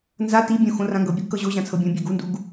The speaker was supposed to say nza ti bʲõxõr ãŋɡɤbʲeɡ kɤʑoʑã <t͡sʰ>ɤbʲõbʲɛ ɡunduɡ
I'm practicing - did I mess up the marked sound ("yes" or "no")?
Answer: no